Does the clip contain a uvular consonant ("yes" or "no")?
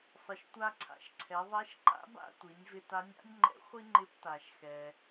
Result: yes